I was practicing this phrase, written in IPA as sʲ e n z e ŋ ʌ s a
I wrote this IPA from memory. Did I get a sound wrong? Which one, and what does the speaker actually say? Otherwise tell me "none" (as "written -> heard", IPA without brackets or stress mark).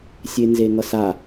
none